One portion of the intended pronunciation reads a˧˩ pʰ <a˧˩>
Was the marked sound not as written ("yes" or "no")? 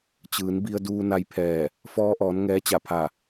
no